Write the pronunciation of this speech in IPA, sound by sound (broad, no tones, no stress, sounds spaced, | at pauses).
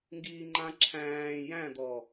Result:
ŋ ɡ iː ŋ͡ǃ ã ǁʰ æ̃ː j æ̃ d̪ ɔ